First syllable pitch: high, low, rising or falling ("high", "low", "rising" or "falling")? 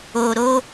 low